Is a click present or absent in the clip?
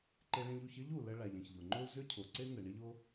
present